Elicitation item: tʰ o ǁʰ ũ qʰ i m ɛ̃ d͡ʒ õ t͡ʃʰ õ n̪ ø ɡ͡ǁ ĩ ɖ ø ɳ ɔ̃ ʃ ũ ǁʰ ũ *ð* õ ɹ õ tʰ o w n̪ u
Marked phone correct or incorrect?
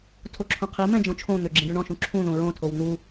correct